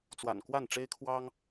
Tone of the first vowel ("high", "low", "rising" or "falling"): low